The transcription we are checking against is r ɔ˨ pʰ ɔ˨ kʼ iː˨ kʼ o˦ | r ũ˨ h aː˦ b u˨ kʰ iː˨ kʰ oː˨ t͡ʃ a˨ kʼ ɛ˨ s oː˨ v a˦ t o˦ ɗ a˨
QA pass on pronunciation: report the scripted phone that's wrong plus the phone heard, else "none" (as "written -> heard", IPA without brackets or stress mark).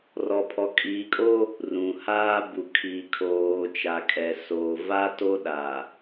none